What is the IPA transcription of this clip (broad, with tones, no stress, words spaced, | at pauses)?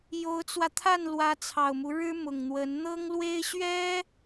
jo˧˥ʊ̯t͡swä˧t̪ʰa˥˩n lwä˧˥t͡sʰɑ˨˩ʊ̯mu˦ ɻɻ̩˥ mʊ˨˩ŋn̪wə˧˥n n̪ɤ˥ŋlwe˥ɪ̯ ɕɥɛ˥